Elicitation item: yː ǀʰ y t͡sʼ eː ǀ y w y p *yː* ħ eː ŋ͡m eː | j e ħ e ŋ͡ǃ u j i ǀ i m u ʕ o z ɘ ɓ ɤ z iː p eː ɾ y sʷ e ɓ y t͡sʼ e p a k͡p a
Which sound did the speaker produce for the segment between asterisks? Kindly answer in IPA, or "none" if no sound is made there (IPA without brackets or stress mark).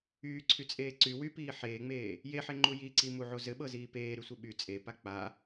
iː